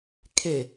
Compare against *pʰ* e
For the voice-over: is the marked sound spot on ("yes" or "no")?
no